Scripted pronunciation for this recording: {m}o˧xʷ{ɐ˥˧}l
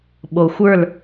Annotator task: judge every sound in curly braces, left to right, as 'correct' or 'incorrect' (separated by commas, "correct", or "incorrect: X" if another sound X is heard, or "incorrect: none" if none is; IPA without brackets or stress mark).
incorrect: ɓ, incorrect: ə˞˥˧